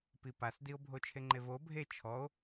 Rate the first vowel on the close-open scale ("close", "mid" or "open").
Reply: close